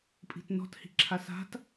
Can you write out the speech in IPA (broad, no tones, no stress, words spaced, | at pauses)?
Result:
pʼi̤tnɔ̤t hi̤ǁʰasa̤t